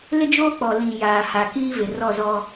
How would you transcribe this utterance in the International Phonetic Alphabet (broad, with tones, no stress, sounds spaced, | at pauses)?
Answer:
l ɪ˦ d͡ʒ oː˦ k͡p ɔ˨ l ĩ˨ j aː˨ h a˨ k iː˦ v ɪ˨ r ɔ˦˨ z ɔ˦